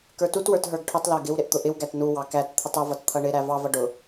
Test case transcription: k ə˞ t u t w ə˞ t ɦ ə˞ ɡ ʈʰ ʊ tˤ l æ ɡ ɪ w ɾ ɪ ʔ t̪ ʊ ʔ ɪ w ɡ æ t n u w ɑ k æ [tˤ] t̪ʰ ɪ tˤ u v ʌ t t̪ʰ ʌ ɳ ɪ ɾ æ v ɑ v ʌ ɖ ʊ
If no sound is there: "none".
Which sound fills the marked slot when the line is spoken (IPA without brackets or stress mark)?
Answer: t